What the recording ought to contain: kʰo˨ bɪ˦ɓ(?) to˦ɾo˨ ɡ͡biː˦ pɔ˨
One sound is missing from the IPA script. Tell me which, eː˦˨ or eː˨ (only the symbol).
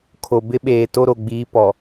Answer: eː˨